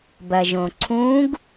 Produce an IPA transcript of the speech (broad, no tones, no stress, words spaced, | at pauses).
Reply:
bɐʒõǀʰũɡ